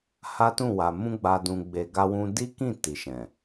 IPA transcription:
ha˦tũ˦˨wa˨ mũ˧ɡ͡ba˨ dũ˨ɡ͡be˨ɡa˧wũ˧ di˦kĩ˦˨ ti˨ʃɛ̃˨

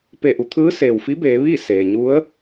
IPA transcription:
pe˧˩ʔu˩˧t̪ʰɯː˧˥seː˩w fi˧˥beː˩˧ ʋiː˥˨ seː˩ɲu˧˥ə̯

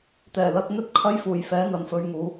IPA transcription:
t̪ɛː˨˩lɐ˧t̚n̪ɵ˥t̚ kʰɐ˥jfuː˨˩jfɛː˨˥ n̪ɐ˨˧nfɵ˧ɥŋuː˨˧

